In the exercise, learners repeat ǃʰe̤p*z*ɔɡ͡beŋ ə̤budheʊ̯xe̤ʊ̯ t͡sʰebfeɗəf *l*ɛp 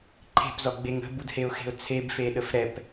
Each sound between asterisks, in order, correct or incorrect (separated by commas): correct, incorrect